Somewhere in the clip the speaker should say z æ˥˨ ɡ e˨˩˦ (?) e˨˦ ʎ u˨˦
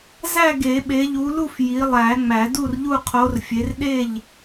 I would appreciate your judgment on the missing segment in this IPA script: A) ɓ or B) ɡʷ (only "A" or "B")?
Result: A